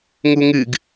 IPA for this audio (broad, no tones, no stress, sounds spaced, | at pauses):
ŋ u ŋ ɨ ɡ